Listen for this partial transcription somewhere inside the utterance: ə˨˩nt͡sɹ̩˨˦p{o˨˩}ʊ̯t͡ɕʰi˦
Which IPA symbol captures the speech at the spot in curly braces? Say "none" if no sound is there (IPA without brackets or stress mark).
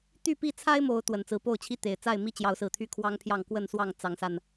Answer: o˥˨